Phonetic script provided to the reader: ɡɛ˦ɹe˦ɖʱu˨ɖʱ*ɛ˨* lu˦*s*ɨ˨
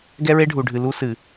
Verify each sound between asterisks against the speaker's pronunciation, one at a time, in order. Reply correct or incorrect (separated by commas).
incorrect, correct